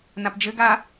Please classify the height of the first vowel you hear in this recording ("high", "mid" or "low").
low